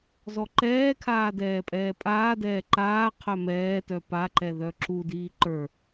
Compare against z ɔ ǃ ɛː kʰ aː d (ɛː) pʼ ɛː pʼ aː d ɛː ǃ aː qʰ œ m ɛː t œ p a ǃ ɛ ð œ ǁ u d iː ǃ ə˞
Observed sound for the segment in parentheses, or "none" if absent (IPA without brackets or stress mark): ɛː